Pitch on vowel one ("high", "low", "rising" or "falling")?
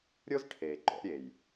high